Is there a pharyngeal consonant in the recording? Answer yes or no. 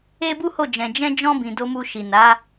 no